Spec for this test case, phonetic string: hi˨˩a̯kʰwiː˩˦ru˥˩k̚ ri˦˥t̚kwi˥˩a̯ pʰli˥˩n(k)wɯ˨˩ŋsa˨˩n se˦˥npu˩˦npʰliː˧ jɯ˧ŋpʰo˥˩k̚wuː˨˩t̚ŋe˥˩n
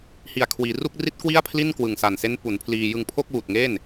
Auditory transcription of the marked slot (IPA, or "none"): k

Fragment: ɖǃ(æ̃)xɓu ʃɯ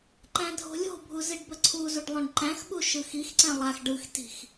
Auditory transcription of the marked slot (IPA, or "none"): æ̃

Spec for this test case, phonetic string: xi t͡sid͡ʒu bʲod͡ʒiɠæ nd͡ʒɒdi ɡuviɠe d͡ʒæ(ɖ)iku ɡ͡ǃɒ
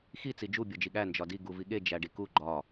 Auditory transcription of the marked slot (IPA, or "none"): ɖ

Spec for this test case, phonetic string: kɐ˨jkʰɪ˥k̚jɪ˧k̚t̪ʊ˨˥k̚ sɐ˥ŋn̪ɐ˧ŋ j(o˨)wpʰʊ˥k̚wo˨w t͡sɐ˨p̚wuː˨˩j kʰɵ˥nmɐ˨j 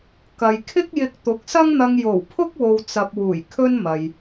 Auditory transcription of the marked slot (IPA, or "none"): o˨˩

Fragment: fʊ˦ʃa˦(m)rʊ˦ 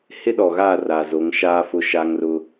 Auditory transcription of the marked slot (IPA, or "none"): ŋ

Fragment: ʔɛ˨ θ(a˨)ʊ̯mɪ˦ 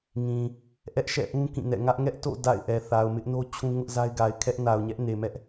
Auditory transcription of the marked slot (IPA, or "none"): a˨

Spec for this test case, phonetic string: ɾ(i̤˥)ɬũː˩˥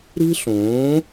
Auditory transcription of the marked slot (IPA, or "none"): i̤˥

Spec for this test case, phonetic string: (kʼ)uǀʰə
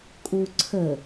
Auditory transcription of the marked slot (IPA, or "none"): kʼ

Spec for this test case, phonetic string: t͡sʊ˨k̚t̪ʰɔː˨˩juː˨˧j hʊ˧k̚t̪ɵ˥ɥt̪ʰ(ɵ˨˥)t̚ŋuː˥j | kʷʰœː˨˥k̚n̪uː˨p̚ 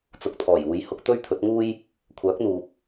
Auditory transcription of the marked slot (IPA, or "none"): ɵ˨˥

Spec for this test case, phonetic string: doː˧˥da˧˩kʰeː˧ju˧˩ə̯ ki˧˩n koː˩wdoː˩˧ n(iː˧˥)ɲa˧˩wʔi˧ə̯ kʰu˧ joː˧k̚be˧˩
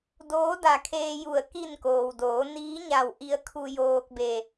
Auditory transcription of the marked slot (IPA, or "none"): iː˧˥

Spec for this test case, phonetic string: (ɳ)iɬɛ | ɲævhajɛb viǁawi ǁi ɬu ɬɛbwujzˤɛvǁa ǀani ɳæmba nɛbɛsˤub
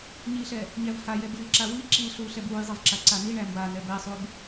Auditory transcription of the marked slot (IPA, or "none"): ɲ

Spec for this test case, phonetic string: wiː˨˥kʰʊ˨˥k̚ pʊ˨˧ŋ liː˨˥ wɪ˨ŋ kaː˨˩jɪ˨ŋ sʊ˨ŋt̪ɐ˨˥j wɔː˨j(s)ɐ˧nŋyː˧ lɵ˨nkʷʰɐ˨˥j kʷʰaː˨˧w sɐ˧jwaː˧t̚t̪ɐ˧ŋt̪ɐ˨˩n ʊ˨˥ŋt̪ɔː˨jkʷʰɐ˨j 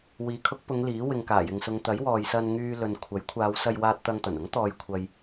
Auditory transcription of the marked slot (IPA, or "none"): s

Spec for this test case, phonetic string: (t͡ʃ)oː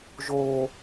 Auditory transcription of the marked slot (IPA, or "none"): ʒ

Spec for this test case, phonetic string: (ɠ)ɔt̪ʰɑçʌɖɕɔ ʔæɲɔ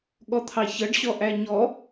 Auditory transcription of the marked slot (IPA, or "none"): ɠ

